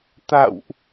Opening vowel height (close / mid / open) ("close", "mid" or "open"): open